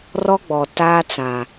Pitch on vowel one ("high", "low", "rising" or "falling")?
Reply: high